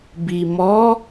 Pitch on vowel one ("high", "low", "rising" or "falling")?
low